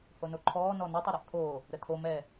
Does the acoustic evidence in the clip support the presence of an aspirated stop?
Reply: yes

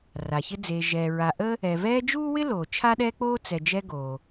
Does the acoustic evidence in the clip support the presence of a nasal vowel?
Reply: no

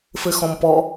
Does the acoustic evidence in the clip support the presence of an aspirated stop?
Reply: no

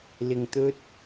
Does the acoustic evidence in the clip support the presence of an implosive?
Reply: no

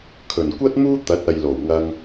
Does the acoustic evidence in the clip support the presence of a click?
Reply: no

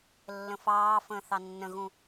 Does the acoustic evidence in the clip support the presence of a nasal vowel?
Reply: yes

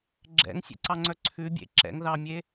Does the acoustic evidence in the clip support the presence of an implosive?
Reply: no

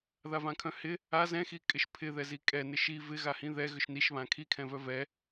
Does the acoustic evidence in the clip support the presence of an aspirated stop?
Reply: yes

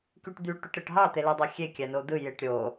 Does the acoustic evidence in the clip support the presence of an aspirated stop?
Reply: no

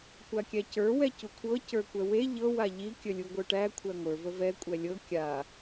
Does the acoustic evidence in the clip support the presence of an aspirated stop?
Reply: yes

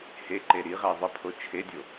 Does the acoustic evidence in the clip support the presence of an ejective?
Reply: no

